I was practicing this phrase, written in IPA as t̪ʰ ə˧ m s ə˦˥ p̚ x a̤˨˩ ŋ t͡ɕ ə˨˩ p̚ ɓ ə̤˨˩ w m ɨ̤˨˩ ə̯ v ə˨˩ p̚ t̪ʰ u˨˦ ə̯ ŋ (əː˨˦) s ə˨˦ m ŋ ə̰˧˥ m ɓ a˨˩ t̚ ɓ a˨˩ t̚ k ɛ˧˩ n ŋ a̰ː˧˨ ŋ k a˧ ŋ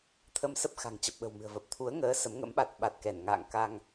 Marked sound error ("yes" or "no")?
no